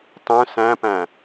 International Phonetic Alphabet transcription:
tˤœ̃ sæ̃pæ̃

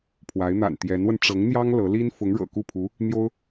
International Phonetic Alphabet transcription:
pʰwa˧˥ɪ̯n̪a̰˨˩n t̪jɛ˧˥nwə˧n ʈ͡ʂɤ˧˥ŋn̪jɑ˥ŋ lɤ˧˥ li˥n fʊ˧˥ŋɻɤ̰˨˩ku˥˩pʰu˧˥ | n̪jo˥ʊ̯

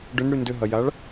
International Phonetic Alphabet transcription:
ɖʏnɽy ndʏɦɐjaɭ

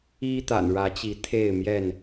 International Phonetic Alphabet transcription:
i˦t̪a̰˨˩nɻä˨˦t͡ɕi˨˦ t̪ʰe˥˨ɪ̯ mjɛ˥˨n

